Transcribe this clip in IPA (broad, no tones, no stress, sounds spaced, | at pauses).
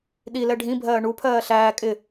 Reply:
ɗ i l ɛ ɖʱ ĩ bʱ ɜː ɳ u pʰ ɜː ɬ æː kʼ ɪ